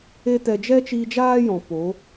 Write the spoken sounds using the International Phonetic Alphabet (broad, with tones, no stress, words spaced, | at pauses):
e˦tɛ˧ d͡ʒɛ˦t͡ʃiː˧d͡ʒaː˦ jɔ̃˨poː˨˦